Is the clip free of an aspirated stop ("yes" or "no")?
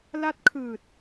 no